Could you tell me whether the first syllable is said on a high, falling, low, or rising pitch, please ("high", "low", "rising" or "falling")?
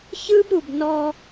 high